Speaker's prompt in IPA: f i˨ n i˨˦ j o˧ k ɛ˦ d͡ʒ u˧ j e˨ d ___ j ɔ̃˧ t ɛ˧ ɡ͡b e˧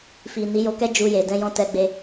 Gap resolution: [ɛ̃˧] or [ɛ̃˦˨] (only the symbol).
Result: ɛ̃˧